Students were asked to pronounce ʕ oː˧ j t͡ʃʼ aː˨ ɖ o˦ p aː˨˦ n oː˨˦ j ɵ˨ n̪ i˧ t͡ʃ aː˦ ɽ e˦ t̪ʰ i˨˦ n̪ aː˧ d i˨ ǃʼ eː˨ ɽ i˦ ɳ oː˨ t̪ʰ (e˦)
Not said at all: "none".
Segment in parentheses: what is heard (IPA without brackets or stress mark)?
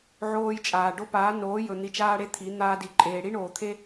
e˦